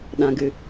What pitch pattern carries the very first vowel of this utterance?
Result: low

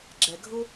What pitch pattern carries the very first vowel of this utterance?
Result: low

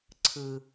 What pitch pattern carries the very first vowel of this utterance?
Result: low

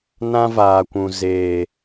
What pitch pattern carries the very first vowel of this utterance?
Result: high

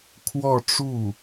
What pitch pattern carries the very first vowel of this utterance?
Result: falling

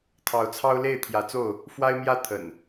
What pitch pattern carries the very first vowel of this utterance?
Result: rising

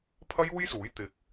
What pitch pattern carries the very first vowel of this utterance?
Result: high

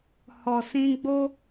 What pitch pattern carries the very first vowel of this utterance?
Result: low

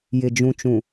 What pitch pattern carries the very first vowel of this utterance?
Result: low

